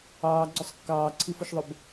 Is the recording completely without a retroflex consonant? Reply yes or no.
yes